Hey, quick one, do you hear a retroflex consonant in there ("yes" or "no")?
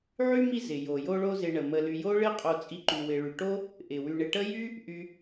yes